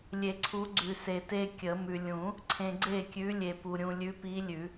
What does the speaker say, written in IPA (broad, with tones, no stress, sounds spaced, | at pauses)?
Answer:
lʲ e˨˩˦ ǀʰ u˨˥ ɡ͡ǀ ʉ˨ s e˨ t e˦ kʲ ə˨˩˦ m ʉ˨ lʲ ũ˨˩˦ | ǀʰ ẽ˨ ɡ͡ǀ e˥˩ kʲ ʉ˨˥ lʲ e˨ p u˨ ɾʲ ũ˨ lʲ ʉ˨˥ p i˨˥ lʲ ʉ˨˩˦